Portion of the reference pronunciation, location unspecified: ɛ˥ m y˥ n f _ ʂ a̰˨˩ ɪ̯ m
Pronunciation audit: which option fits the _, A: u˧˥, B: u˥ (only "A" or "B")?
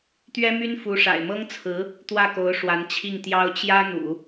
A